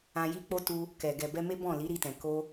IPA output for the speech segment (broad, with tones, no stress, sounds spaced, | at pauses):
ã˧ j i˦ k͡p o˦ t u˧ | k ɛ˨ ɡ ɛ˨ b ɛ˧ m e˦ b ɔ̃˦˨ l i˨˦ ɾ i˧ t ɛ̃˨ k o˧